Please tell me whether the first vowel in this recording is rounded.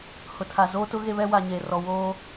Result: yes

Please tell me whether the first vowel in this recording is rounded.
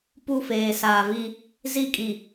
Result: yes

